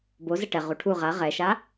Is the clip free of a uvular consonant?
no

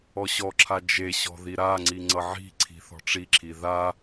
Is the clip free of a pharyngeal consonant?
no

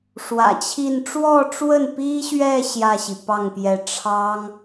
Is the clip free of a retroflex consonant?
no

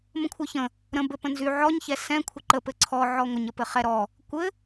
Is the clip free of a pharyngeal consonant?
no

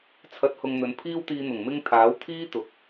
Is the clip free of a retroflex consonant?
yes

